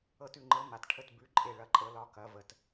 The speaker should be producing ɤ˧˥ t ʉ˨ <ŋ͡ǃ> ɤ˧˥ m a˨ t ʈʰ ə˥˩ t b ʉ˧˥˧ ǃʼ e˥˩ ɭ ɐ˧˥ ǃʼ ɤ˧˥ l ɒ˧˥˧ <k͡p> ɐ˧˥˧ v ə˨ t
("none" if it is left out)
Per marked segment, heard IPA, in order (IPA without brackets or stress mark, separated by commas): ŋ͡ǃ, k